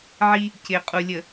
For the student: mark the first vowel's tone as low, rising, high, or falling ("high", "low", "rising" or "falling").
high